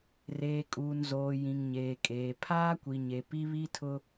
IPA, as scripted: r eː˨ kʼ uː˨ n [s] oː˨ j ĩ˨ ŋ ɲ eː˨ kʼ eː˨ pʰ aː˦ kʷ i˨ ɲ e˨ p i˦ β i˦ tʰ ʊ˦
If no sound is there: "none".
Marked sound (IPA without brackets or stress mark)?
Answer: z